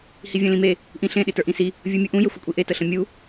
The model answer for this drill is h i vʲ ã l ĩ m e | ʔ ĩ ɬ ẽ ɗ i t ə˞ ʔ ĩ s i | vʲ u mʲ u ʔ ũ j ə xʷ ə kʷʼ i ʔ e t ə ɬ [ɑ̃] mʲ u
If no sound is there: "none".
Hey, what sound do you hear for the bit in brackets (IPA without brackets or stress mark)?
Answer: ə̃